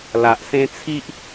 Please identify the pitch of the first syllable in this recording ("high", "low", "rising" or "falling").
low